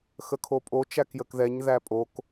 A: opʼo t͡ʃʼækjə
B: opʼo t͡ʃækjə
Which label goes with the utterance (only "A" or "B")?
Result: B